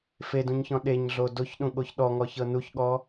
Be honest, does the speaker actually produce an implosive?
yes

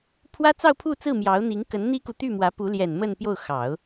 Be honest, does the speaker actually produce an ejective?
no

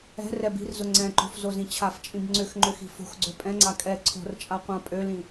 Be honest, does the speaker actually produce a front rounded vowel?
yes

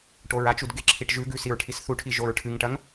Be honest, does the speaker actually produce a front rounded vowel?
no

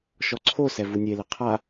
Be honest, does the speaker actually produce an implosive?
no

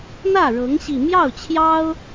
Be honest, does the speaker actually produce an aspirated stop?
yes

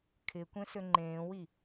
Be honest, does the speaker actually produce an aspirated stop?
yes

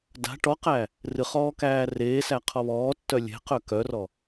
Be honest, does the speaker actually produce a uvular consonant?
yes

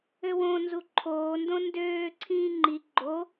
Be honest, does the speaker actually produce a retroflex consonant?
no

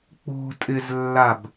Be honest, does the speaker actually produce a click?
no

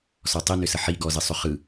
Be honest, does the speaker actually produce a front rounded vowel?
yes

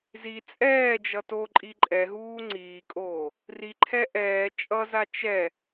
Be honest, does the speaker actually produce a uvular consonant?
no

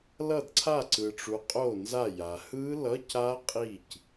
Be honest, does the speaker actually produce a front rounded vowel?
no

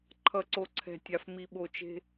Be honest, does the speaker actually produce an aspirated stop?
yes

